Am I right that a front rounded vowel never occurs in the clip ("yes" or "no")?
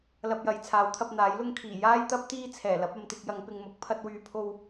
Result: no